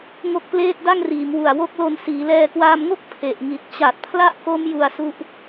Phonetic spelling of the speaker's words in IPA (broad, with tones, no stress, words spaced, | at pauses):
ŋo˦˥k̚pleː˥˩t̚ da˥˩ŋriː˩˦mwu˨˩a̯ wo˥˩k̚lo˧n siː˩˦lɛː˧kwaː˧mŋo˥˩k̚ pʰe˨˩ʔŋi˨˩t̚ t͡ɕa˨˩t̚pʰla˥˩ʔko˦˥m ju˧a̯su˦˥ʔ